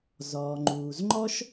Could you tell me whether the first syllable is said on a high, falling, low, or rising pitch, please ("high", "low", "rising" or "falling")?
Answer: low